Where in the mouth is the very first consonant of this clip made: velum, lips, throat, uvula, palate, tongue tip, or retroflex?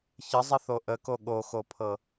palate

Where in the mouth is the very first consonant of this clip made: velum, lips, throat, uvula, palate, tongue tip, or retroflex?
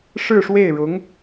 retroflex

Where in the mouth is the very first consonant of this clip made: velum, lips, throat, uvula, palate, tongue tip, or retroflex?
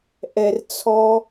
throat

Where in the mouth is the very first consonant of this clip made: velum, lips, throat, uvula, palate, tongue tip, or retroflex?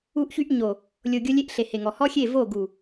throat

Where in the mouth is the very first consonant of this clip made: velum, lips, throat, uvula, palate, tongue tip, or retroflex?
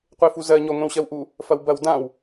uvula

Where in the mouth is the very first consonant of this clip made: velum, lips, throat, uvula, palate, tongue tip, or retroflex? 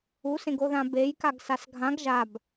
tongue tip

